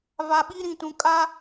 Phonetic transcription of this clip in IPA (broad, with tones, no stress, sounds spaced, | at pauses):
v a˨ ɓ i˦ ɾ ĩ˨ t ũ˨ kʼ a˦